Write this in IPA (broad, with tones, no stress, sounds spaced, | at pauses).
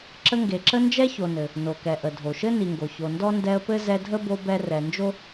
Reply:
ǁ ə˦ ŋ ɡ e˨ ǁ ə˥ n d͡ʒ ɛ˥ ç o˨ n ɘ˩ | n o˩ k ɛ˩ ʔ ə˩ dʱ o˩ ʃ ɘ˥ n i˨ ŋ ɡ o˩ ç o˨ n d ɔ˥ n d ɛ˦ ə̯ p ɘ˥ z ɛ˦ dʱ ə˥ b o˦ b ɛ˦ r ɛ˨ n d͡ʒ o˥